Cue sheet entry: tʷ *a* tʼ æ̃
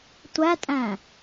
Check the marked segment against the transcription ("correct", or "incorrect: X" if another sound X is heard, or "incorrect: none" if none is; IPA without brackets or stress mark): incorrect: æ